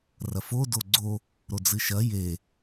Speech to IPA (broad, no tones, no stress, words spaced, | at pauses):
rɐfo doɡ͡ǀo | ɾod͡zɨʃɐ je